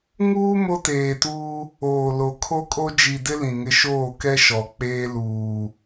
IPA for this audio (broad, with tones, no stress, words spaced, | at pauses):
ŋuː˦ mo˦teː˨tuː˦ | oː˨lo˨˦ kʰo˦kʼo˦ d͡ʒi˨dɪ˦ lĩ˨ŋɪ˦ ʃoː˦˨kɛ˦ ʃɔ˨ k͡peː˦luː˨